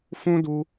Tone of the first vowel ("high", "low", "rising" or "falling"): high